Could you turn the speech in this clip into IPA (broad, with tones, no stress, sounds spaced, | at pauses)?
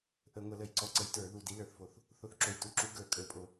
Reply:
ʔ ə˧˩˧ ŋʷ ə˧˩˧ l ə˧˩˧ j ǀ ɔ˨˦ ǀ ə˨˦ j t ə˞˧˩˧ ð u˨˩ d i˨˦ l ə˞˨˩ θ f o˨˩ θ | θ o˨˦ θ ǁ o˨˩ j t u˨˦ ǁ u˨˦ ɡ ə˞˧˩˧ kʼ ə˞˨˩ pʼ o˧˩˧